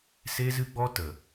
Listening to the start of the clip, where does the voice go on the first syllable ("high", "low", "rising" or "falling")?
high